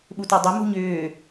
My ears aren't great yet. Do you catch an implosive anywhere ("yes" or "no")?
yes